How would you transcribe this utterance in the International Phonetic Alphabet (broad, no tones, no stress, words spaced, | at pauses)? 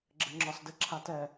ɡ͡ǁɘŋ͡ǁɒsdɘ ǁʰatɛ